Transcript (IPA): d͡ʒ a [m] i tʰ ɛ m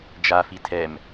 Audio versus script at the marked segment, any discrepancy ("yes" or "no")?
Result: yes